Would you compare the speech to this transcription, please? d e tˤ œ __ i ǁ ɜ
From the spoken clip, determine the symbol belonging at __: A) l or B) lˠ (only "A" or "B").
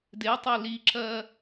A